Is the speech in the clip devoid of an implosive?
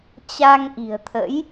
yes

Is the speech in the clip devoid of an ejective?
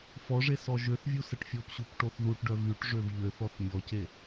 yes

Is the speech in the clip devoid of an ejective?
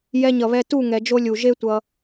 yes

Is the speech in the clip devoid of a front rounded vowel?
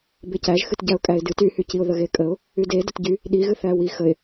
no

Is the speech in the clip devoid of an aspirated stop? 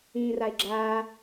yes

